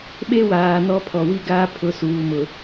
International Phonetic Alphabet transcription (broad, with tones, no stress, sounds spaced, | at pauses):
ɓ e˦ w aː˨ n ɔ˦ pʰ ɔ˨ w i˦ ɡ aː˦ pʰ ʊ˨˦ s uː˨ m ʊ˨